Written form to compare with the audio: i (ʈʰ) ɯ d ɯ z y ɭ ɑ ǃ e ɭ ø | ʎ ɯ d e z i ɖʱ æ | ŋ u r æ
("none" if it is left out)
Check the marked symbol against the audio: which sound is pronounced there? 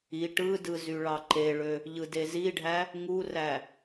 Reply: ʈ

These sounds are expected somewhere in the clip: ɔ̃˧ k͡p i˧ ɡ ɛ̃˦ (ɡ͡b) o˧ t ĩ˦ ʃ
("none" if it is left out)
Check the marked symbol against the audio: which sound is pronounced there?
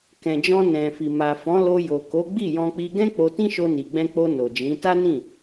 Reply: k͡p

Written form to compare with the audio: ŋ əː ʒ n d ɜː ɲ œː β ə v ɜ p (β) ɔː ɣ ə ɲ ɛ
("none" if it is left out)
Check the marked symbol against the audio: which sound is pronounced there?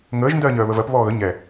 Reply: β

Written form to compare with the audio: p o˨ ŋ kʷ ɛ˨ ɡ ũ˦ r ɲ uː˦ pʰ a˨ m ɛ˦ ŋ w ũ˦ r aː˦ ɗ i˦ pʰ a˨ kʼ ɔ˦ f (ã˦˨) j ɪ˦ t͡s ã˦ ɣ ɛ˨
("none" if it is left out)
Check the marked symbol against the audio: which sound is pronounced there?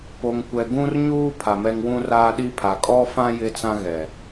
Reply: ã˦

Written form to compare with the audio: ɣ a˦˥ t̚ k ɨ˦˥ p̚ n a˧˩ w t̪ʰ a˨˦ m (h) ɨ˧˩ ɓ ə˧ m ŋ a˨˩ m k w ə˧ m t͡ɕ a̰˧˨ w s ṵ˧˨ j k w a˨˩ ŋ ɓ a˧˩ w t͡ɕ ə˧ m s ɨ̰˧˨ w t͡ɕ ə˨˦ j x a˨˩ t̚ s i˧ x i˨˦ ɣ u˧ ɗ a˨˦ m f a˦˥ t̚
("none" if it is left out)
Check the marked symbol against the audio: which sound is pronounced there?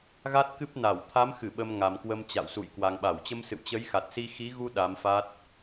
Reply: x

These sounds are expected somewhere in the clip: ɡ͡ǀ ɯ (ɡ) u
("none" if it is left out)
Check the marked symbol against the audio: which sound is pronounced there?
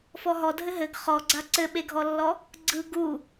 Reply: ɡ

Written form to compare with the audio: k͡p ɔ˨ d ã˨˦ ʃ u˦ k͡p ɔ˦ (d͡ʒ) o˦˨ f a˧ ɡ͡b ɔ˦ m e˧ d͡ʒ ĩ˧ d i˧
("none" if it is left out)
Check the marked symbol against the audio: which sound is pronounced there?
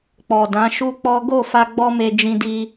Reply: ɡ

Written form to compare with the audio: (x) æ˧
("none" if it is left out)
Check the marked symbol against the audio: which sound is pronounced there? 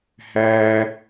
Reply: h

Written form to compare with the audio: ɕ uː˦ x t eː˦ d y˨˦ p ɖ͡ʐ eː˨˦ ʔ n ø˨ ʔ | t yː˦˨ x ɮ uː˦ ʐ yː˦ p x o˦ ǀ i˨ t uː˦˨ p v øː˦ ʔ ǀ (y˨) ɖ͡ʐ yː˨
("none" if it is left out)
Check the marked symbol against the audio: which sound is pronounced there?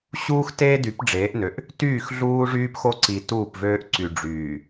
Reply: y˨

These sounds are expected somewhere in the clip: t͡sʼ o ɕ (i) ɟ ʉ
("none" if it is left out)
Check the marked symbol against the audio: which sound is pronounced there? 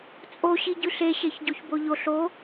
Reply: i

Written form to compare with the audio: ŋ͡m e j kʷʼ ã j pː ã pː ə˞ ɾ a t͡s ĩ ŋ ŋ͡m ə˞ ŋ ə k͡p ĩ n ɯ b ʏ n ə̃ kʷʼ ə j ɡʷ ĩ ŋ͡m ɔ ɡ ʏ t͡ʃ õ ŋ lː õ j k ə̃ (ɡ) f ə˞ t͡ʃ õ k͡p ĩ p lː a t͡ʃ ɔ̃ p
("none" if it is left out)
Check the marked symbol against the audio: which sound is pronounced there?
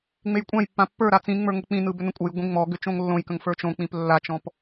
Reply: ŋ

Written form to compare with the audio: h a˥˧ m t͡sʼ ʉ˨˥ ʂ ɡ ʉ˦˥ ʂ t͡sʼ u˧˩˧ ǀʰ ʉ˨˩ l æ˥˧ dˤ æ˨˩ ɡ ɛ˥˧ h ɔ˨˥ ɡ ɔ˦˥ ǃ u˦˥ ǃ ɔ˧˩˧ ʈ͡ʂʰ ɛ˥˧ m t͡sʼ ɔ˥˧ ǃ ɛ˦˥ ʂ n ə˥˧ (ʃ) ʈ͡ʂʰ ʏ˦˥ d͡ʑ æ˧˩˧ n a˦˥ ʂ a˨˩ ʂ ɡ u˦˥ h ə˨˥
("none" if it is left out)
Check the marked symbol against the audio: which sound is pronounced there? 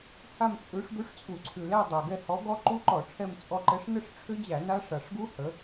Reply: ʂ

